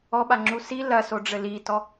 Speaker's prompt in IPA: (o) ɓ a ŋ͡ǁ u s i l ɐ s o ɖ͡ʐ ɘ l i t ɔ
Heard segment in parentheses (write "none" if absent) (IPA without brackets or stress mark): ɔ